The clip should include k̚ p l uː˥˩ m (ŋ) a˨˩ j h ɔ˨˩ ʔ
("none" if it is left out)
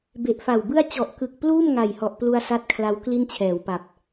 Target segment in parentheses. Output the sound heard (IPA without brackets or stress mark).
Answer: ŋ